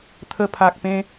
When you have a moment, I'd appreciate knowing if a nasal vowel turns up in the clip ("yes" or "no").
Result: yes